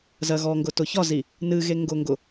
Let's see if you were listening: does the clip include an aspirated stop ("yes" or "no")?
no